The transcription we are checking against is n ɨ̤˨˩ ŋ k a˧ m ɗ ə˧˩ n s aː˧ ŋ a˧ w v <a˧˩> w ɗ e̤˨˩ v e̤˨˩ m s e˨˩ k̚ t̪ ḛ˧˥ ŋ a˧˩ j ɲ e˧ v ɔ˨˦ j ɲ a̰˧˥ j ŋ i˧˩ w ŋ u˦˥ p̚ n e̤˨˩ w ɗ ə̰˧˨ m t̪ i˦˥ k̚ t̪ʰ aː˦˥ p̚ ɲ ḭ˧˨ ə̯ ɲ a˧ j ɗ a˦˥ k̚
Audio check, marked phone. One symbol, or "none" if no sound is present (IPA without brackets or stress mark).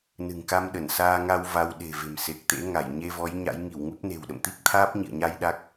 a˧